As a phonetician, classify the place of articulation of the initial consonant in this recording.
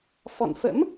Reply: labial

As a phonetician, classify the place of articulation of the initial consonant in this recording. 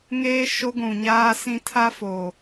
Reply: velar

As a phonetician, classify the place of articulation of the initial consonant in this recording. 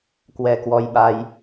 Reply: velar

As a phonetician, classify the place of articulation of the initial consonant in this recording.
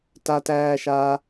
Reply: alveolar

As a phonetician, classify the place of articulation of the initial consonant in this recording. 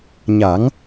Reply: palatal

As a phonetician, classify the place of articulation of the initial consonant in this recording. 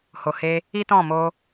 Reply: glottal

